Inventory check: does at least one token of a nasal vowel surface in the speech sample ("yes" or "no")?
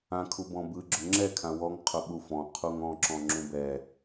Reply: yes